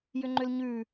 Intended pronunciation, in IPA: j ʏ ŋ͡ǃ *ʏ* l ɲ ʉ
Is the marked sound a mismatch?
no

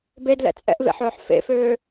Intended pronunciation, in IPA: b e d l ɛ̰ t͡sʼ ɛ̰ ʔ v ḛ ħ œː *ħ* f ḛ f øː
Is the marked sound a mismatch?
no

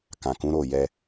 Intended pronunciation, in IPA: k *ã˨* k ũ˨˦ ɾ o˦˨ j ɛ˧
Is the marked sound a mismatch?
no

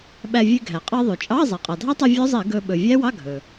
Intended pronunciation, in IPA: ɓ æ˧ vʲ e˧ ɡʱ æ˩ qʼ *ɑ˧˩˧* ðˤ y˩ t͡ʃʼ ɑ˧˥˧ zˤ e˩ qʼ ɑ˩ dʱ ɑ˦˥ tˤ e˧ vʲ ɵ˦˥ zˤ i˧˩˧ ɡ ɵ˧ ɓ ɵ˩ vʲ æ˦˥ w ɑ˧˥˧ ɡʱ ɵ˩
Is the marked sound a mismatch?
yes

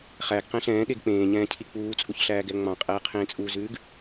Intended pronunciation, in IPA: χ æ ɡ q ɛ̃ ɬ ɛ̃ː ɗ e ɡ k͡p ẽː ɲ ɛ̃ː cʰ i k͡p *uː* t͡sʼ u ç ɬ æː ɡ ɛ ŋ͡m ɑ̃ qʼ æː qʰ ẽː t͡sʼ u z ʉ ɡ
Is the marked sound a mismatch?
no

